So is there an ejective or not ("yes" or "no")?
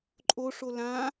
yes